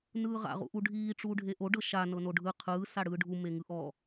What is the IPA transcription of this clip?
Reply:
nɯːʁa̰ ʁṵʔuɖʱiː ʈ͡ʂuːɖʱeʔo ɖɤʃa nɤnoɖʱɯ qʰɯː saɽɯːɖʱu meŋɯʔɔ

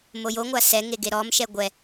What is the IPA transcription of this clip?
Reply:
mojoŋʷa sɛ ŋeɡeɾɔmʃɛ ɡʷɛ

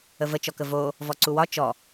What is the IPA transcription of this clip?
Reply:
əvət͡ʃɔkə vo | vɔǀuwɒ t͡ʃɔ

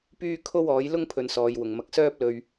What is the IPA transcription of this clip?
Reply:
pyː˥ kʰo˥wɔː˨˥j lʊ˥ŋpʰɵ˨n sɔː˨˧jwʊ˨˩ŋmɐ˧k̚ sœː˥p̚lɵ˧ɥ

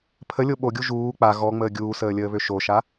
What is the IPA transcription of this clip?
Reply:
pʰəlʲo ɓoɡʲu ʒuː k͡pa ɣɔŋ͡məː ɡʲuːsəːlʲəːβø ʃoʃa

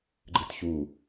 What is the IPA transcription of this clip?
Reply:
ɡ͡ǃɨtçu

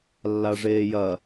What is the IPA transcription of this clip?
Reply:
lːaʐeːjɐ

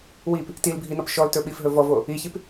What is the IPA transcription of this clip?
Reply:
wip | tilbʱinɔp ʃɔltɵɓifɦɵ vɔvo | içip

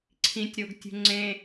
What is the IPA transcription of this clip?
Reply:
ǀʰĩtʲɾoɡtʲṳ ŋ͡ǀẽ

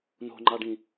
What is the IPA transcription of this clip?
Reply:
no̤ŋ͡ǃɑɖĩ

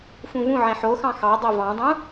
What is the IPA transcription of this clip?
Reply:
fũvũʕẽ ħoxɑ̃ xɑdˤo vɑ̃dˤũ

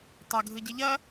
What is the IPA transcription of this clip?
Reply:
tˤɐɡʱɯ ɟeʎɐ

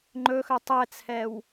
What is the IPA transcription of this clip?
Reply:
ŋ͡ǃɵxœ tˤɛt͡sʰɛw

